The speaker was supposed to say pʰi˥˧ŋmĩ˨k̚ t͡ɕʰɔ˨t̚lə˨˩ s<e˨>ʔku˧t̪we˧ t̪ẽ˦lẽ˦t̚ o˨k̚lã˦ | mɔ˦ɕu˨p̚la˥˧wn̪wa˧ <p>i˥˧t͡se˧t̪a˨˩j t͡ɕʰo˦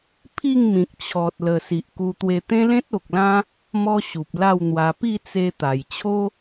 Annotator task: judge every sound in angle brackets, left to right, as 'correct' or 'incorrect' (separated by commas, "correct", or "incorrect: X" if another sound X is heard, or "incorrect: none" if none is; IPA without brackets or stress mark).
incorrect: i˨, correct